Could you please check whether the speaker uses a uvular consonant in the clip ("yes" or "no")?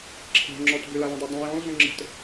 no